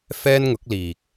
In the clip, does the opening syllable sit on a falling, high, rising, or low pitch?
high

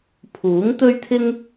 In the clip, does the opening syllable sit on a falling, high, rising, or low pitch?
rising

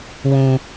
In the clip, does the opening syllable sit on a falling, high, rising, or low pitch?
low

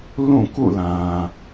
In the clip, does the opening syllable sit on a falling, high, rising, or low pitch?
falling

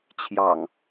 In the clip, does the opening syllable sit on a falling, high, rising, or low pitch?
low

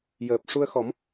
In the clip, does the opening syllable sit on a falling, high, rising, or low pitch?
low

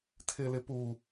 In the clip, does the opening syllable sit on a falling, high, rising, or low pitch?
high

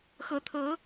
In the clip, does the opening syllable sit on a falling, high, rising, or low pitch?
rising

